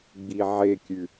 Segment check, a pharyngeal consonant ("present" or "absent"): present